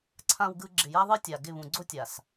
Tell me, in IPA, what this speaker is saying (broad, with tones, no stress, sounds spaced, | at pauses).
ǀʰ ã˨ w ɡ ɯ˨ ɡ͡ǁ ɪ˨ j a˦ ðˤ ɯ˦ tʲ a˨ ɡ ɪ˦˨ β ũ˨ ɡ͡ǀ o˦ tʲ a˨ s